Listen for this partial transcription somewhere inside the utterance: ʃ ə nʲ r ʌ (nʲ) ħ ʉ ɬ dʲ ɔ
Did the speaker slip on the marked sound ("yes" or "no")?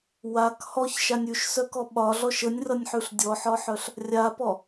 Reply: no